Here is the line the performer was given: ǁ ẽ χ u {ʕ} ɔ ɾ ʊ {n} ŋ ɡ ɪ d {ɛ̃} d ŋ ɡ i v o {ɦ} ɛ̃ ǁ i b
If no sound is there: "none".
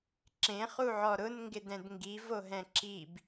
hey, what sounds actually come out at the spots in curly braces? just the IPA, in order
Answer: ʕ, n, ɛ̃, ɦ

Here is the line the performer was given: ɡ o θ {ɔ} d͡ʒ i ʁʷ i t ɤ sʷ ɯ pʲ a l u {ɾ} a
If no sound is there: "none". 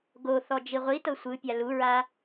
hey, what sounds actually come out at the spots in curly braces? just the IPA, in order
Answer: ɔ, ɹ

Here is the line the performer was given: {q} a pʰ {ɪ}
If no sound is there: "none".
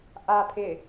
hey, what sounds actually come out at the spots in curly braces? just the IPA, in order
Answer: ʔ, ɪ

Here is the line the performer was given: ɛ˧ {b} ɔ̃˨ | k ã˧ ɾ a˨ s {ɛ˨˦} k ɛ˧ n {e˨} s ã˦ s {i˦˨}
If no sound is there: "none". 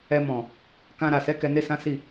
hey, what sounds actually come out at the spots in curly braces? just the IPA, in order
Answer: m, ɛ˨˦, e˦, i˦˨

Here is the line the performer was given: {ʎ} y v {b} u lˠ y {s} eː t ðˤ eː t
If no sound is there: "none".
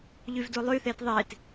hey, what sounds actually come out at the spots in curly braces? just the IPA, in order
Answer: ʎ, d, θ

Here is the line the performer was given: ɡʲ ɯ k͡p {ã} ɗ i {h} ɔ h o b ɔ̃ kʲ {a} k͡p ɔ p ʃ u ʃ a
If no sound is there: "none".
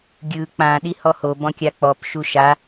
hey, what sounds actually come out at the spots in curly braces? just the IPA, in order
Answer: ã, h, a

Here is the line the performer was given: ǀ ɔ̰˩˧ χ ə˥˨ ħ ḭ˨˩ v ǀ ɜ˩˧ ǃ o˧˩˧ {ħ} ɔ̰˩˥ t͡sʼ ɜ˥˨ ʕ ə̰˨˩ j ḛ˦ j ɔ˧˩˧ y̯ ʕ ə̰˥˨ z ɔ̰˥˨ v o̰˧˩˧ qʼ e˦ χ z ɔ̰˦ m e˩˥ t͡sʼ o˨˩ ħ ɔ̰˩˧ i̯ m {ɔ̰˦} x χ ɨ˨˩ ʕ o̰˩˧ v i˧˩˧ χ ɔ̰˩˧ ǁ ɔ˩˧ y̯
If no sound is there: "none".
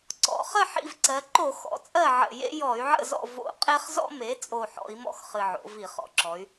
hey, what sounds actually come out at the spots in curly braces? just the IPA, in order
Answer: x, ɔ̰˦

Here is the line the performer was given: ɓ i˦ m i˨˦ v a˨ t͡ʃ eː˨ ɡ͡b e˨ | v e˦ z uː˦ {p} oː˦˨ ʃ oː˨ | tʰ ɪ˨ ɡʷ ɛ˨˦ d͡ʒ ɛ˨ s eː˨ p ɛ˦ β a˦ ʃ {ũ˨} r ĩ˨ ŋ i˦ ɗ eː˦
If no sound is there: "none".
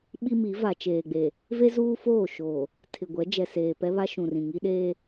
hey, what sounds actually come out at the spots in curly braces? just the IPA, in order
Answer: f, ũ˨

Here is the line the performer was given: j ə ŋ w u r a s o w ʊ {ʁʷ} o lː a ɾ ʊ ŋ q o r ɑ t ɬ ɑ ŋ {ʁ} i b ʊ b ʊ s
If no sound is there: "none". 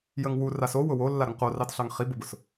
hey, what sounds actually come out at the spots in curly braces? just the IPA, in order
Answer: w, χ

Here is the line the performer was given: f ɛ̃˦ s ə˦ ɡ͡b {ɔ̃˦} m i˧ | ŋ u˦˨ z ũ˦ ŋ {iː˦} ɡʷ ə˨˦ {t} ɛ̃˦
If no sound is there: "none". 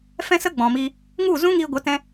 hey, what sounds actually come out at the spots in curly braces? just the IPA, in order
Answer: ɔ̃˨, iː˧, t

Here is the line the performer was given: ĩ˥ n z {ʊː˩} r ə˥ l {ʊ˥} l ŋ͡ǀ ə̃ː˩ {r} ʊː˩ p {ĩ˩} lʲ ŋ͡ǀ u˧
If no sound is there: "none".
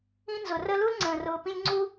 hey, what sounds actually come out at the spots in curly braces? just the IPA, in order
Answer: ʊ˩, u˥, r, ĩ˧

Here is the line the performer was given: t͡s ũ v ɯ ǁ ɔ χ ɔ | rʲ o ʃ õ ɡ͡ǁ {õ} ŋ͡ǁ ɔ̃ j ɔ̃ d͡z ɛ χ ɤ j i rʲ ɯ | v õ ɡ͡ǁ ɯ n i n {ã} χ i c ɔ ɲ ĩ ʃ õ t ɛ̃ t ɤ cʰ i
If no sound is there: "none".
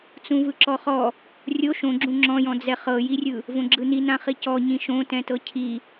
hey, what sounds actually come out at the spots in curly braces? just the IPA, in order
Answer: ũ, ã

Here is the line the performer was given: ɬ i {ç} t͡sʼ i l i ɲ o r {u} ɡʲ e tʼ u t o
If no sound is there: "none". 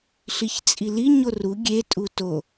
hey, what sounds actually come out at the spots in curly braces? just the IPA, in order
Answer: ç, u

